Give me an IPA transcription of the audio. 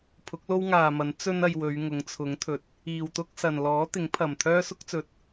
pʰʊ˨˥k̚lo˥wŋaː˨mɐ˨˥n t͡sɵ˥nɐ˧jwɵ˨˧ɥ ŋʊ˨˥ŋt͡sʰʊ˨˥ŋt̪ʰɵ˨t̚ | iː˨wt̪ʊ˥k̚sɐ˨n lɔː˨˥t̪ɪ˨˥ŋpʰɐ˨˩m t̪ʰœː˥sʊ˥k̚t͡sɵ˨˥t̚

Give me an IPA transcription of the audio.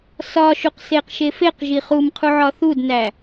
sɒʃuqseqʃe feqʒi χumqʰuʕɒ θudnæ

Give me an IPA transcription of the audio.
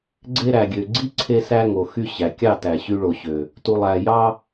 ɡ͡ǀe˧ɾæ˨ɡʲø˨ ɡ͡ǀi˦ǀʰe˧sæ˧ ŋo˨xy˧ɕæ˨ kʲɑ˦˨tæ˨ ɕy˧ɭo˨ɕø˨ | tu˨lˠæ˨jɑ˧

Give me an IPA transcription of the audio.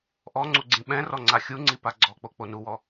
ʔɔŋ͡ǀu ɡ͡ǀĩɓɛ̃rɔ ŋ͡ǀaxʲuŋ͡ǀi paɡ͡ǀɔk͡po k͡ponuwɔ

